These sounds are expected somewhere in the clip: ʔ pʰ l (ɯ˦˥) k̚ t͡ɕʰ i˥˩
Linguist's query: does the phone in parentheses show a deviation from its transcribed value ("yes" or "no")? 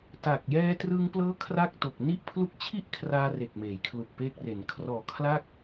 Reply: yes